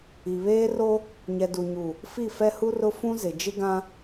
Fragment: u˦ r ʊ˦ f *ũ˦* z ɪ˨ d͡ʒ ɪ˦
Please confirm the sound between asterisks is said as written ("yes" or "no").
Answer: yes